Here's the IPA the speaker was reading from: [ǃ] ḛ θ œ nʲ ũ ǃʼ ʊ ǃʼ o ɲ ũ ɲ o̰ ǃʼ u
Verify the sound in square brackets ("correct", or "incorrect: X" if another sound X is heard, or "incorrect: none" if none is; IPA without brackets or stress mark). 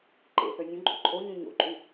correct